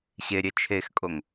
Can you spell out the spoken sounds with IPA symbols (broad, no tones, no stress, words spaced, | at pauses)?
ɕeɾʲɛ t͡ʃʰexkʼoŋ